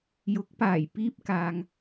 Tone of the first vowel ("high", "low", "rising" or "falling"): rising